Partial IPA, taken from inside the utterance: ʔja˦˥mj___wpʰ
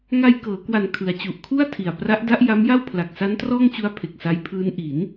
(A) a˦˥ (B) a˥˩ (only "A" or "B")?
B